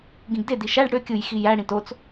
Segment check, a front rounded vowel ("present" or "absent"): present